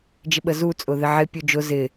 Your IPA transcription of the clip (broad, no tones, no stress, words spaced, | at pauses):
d͡ʒɪɓəzu t͡sʼʊðɪʕɪ pʲud͡ʒʊ zɪ